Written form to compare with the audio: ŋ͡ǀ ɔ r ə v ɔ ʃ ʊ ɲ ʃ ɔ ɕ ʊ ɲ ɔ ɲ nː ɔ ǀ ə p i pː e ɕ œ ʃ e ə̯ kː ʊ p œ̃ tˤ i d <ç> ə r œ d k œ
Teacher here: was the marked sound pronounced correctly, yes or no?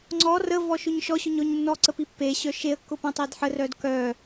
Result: no